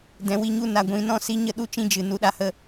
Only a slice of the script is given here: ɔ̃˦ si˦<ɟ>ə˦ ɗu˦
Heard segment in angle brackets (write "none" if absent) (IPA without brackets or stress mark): ɲ